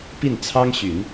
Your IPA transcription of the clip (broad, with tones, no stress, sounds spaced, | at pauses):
p i˥˩ n t͡sʰ ɑ˥ ŋ ɕ y˨˩˦ n